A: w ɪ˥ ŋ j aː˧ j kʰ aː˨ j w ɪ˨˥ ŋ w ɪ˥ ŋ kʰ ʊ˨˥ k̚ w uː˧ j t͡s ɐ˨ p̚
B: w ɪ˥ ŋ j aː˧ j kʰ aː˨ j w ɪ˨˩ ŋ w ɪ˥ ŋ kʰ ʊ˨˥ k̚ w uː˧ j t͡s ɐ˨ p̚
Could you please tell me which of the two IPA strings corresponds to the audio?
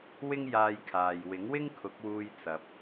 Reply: A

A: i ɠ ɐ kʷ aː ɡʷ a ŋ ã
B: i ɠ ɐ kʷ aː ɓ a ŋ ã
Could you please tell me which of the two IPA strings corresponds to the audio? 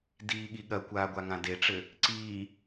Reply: A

